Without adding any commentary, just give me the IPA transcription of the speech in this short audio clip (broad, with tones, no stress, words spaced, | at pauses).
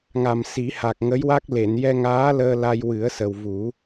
ŋa˨˩msi˨˩˦ha˨˩k̚ ŋə˧˥jwa˦˥k̚ le˨˩˨njɛ˧ŋaː˧˥ ləː˧la˧j wɨ˨˩˦ə̯sə˨˩wvu˨˩˦